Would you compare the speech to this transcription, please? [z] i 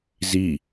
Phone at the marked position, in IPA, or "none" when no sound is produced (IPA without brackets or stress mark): z